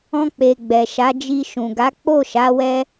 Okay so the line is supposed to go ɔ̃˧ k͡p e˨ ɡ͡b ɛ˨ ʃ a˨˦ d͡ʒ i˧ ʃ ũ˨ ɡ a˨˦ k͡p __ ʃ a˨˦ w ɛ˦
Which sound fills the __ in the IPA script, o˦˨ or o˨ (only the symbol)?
o˦˨